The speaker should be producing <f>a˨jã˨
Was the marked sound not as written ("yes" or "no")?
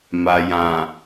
yes